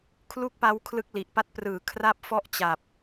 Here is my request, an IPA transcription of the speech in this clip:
kʰ l u˥˩ k̚ p a˦˥ w kʰ l ɯ˦˥ k̚ l i˨˩ ʔ p a˥˩ t̚ p r ɯː˨˩ kʰ r a˥˩ p̚ f ɔ˥˩ ʔ t͡ɕ a˨˩ p̚

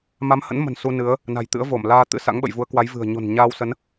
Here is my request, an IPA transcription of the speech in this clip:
m a˨˦ m h ə̰˧˥ n m ə̤˨˩ n s u˧ n ɨ˨˦ ə̯ | n a̤˨˩ j t̪ ɨ̰˧˥ ə̯ v o˧˩ m l aː˧ t̪ ɨ̰˧˥ s a̰˧˥ ŋ ɓ ə̰˧˨ j v u˨˦ ə̯ k w a˨˦ j v ɨ̤˨˩ ə̯ ɲ o̤˨˩ n ɲ aː˧ w s ə˨˦ n

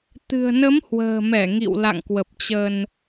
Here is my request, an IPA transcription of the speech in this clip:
t̪ ɨ̤˨˩ ə̯ n ə˨˦ m h w ə̤ː˨˩ m ɛ˧˩ ŋ ḭ˧˨ w l a̰˧˨ ŋ k w ə˨˩ p̚ t͡ɕ ə˧ n

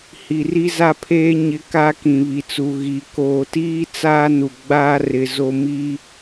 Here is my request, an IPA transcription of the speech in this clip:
h i˨ r i˦ z a˦ pʰ eː˦ ɲ ɪ˦ k a˦ k ĩ˨ β i˨ t͡s u˨ ɣ i˨ k oː˨ t iː˦ t͡s aː˦ n u˨ ɡ͡b aː˦ r ɪ˨ z o˦ m i˦

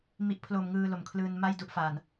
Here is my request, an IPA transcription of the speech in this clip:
m i˨˩ ʔ pʰ l o˨˩ m ŋ ɯː˧ l o˩˦ m kʰ l ɯː˧ n m a˥˩ j d u˦˥ ʔ f a˨˩ n

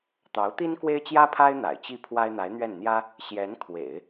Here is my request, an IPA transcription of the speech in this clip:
t̪ ɑ˧˥ ʊ̯ t̪ i˥ n k w e˥ ɪ̯ t͡ɕ j ä˥ pʰ a˥ ɪ̯ n̪ a̰˨˩ ɪ̯ t͡ɕ i˥˩ pʰ w a˥ ɪ̯ n̪ a˧˥ ɪ̯ n̪ ɥ ɛ˥˩ n n̪ j ä˥ | ɕ j ɛ˧˥ n kʰ w ḛ˨˩˦ ɪ̯

